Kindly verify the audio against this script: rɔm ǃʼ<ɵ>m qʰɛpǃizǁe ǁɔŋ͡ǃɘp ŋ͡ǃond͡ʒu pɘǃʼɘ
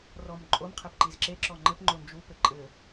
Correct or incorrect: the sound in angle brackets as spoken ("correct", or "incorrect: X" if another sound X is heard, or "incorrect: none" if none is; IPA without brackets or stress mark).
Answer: incorrect: o